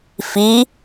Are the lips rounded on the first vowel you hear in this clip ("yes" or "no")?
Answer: no